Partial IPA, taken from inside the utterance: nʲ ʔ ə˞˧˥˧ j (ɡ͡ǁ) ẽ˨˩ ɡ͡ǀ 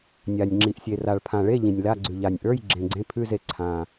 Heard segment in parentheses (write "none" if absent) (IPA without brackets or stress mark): ɡ͡ǁ